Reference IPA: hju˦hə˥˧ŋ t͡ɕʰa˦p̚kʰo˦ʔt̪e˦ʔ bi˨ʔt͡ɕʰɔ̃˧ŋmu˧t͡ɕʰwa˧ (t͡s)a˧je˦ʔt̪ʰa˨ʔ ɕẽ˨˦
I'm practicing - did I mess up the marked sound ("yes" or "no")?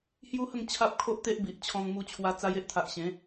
no